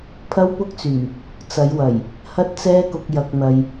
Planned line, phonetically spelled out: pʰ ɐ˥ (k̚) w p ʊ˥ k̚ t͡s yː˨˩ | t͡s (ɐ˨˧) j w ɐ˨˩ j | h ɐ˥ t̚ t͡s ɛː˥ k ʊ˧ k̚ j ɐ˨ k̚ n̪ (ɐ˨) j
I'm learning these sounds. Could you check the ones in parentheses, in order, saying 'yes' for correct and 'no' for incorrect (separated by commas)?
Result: no, yes, yes